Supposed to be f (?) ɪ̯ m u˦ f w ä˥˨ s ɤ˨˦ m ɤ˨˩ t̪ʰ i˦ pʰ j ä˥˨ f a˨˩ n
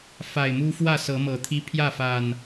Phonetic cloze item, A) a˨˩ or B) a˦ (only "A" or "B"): A